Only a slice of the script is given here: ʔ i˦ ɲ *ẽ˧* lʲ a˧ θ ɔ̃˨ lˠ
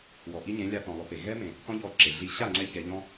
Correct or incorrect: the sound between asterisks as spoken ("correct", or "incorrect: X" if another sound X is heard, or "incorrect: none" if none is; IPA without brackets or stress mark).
incorrect: ẽ˨˦